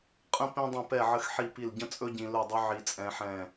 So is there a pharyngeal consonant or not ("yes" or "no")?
yes